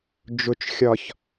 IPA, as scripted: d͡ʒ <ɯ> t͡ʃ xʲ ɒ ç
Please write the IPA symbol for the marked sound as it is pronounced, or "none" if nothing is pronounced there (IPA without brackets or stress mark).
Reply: ʊ